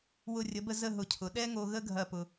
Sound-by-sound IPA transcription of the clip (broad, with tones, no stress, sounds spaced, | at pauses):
w ʊ˧˩ rʲ ə˩˧ b ə˧ z ə˥˧ ɦ ʊ˧˩ cʰ ʊ˩˧ ɗ ɛ˥ ŋ o˧ ɣ ə˥ ɡʱ ɐ˥˧ p ʊ˧